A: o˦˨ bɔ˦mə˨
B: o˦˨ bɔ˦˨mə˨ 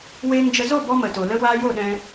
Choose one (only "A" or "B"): A